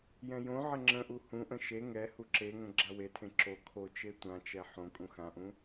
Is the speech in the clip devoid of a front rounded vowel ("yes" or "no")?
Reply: yes